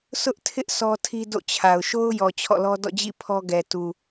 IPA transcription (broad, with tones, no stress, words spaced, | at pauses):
sʊ˦ʔtʰɪ˦ʔ sɔ˦tʰi˦do̰˦˨t͡ɕʰa˨ʊ̯ ʃo˦ʊ̯jɔ˨ t͡ɕʰɔ̰˦˨lɔ˦ dɔ̰˦˨d͡ʑḭ˦˨ pʰɔ˦ɡɛ˨tu˨